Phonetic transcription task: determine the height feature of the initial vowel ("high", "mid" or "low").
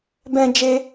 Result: mid